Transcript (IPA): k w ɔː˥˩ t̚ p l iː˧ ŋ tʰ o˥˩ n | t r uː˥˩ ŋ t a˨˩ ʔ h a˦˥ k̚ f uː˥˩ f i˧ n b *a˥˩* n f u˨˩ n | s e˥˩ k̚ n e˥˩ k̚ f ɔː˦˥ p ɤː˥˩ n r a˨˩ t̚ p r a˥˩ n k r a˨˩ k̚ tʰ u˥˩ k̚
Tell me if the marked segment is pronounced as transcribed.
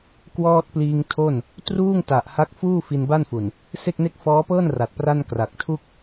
yes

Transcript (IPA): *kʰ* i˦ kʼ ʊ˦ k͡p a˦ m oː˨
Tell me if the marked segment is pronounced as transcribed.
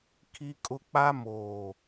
yes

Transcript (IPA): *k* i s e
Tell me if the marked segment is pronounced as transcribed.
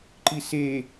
no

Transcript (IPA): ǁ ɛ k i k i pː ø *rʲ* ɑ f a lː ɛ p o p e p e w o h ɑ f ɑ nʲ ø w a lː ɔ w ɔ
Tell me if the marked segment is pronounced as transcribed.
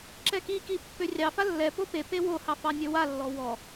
yes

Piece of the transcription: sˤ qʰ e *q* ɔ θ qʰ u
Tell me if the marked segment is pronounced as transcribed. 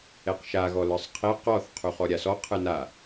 yes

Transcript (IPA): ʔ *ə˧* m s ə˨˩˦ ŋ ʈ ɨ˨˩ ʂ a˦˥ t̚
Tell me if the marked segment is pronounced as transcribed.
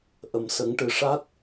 no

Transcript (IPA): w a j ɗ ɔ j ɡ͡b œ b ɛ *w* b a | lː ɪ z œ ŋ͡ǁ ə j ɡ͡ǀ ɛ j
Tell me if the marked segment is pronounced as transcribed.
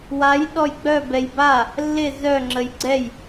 no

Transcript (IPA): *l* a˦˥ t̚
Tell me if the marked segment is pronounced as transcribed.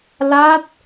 yes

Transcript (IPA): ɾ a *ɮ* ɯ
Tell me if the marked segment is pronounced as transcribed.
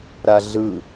yes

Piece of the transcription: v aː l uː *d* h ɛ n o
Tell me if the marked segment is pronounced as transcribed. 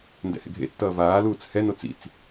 no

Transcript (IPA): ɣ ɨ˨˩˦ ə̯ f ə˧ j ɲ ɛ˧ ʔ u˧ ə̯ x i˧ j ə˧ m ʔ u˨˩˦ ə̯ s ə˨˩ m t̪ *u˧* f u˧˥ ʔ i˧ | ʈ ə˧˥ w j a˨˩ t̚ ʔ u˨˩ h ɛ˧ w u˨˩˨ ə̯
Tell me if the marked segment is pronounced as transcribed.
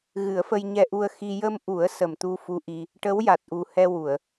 yes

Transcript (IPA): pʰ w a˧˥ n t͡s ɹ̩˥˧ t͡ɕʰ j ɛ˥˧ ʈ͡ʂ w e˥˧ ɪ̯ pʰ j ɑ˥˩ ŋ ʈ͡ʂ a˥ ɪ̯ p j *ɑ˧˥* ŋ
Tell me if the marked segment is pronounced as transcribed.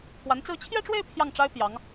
yes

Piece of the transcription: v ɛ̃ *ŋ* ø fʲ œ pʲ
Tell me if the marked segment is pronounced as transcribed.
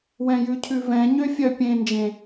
no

